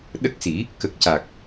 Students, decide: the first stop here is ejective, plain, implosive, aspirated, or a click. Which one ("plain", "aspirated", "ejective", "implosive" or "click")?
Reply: implosive